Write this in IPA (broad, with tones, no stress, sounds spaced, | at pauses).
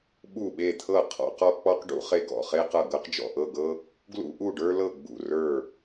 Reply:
ɓ u˧˩ ɓ e˧˩ t̪ʰ ɤ˧˩ qʰ ɔ̰˧ q ɔ˧ k͡p ɔ˧ q ɖ ṵ˧ χ e˧ ɡ ɔ̰˧˩ χ e˧ q ɤ˧˩ ɡ ɤ˧ q d͡ʒ ɔ̰˧˩ ʔ ɤ˧˩ ɡ ɤ˧ | ɡ l ṵ˧ ʔ u˧˩ ɖ ə˞˧ l ɤ˧˩ ɡ͡b ṵ˧˩ r ə˞˧˩